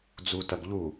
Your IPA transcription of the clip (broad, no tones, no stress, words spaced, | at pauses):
d͡zutɐɡ ʎu